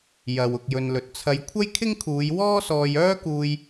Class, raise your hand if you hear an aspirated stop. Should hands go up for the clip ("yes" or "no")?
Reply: yes